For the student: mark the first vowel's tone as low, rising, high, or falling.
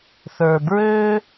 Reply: low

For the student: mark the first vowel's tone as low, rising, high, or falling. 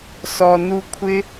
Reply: low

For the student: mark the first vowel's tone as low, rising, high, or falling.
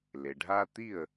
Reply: low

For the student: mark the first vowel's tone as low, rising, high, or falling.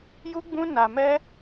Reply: high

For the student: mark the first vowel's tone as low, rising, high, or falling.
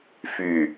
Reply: low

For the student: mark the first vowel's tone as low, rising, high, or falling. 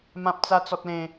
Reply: high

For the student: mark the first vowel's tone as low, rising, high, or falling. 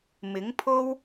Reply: rising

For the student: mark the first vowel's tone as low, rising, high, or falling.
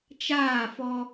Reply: falling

